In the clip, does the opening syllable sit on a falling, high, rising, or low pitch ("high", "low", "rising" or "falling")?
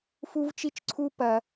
high